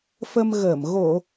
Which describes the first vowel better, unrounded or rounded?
unrounded